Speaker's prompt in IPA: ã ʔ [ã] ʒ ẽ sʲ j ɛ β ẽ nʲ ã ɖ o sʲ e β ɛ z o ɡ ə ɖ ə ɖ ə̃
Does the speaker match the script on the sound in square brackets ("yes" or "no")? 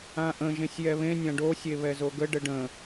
no